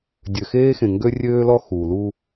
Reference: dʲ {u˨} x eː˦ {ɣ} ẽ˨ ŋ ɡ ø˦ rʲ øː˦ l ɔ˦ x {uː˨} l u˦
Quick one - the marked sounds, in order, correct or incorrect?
incorrect: ø˨, incorrect: x, correct

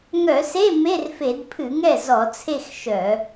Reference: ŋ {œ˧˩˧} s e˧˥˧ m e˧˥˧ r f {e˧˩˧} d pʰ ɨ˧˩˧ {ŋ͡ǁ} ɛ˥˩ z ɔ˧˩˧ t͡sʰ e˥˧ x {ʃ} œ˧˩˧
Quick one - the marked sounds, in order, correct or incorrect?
correct, correct, incorrect: ŋ, correct

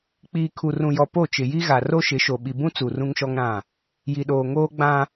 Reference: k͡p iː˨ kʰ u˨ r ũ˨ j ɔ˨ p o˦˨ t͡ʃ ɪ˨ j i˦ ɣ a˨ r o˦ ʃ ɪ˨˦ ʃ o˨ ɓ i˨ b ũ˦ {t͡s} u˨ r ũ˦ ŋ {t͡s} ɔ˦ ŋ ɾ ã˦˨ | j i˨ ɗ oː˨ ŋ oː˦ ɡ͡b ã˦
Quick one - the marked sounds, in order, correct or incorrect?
correct, incorrect: ʃ

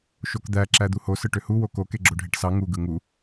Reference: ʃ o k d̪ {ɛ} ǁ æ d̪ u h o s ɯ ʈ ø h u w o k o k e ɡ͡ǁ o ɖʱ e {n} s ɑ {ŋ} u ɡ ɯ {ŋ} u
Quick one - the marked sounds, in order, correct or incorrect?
incorrect: æ, incorrect: ʈ, correct, correct

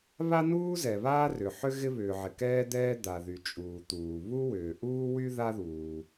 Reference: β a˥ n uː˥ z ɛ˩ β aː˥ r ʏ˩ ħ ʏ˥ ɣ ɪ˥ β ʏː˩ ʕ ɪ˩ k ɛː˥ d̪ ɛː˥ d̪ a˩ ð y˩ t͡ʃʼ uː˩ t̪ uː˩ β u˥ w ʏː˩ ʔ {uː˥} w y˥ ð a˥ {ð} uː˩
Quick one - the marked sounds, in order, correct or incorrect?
correct, correct

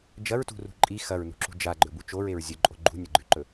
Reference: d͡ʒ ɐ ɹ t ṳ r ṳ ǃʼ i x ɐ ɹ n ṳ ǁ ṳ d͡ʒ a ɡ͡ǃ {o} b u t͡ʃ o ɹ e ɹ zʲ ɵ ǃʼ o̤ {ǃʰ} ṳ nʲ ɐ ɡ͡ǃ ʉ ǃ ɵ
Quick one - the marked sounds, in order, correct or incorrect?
incorrect: ɵ, incorrect: ɡ͡ǃ

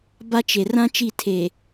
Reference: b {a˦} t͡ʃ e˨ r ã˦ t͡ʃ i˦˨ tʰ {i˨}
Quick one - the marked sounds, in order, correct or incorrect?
correct, incorrect: e˨

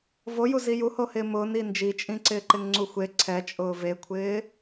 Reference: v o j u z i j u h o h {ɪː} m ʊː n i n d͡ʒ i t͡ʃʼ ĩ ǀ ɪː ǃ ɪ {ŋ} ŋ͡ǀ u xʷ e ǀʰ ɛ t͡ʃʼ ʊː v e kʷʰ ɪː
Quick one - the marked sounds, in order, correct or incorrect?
correct, correct

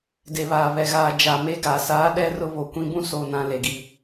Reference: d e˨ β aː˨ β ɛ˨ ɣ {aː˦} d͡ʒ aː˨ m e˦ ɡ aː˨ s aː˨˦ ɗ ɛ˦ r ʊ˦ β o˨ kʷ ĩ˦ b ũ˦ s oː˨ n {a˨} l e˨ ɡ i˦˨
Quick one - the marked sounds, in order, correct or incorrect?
incorrect: aː˨, incorrect: ã˨

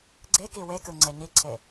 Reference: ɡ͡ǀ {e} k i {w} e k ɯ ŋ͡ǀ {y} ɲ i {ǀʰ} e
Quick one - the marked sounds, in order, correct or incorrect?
correct, correct, incorrect: e, correct

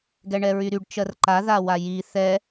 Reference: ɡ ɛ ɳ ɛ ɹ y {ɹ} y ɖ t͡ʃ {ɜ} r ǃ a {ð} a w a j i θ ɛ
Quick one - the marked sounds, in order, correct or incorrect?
incorrect: ɾ, correct, correct

